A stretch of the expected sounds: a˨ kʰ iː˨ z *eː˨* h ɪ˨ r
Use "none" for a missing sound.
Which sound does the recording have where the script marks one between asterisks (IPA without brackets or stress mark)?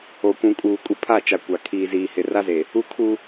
iː˨